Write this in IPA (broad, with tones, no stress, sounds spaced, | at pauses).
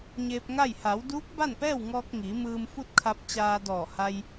ɲ eː˧ p̚ ŋ a˥˨ j h a˩˧ w d uː˧˥ k̚ b a˥˨ n p ɛː˥˨ w ŋ ɔː˧ k̚ ŋ iː˩˧ m ɯː˧ m f u˥˨ t̚ kʰ a˧ p̚ t͡ɕ aː˧ d ɔː˧˩ h a˧ j